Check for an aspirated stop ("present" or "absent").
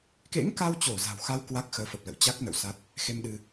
absent